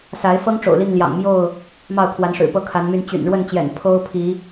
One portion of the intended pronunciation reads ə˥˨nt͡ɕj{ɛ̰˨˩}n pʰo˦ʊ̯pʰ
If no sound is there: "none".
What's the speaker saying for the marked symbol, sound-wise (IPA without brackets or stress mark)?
ɛ̰˨˩